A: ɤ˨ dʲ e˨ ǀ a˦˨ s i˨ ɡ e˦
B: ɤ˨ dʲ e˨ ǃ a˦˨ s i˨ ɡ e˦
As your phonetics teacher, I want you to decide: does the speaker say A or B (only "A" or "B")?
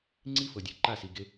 B